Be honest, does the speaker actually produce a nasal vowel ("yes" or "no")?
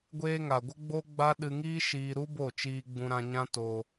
yes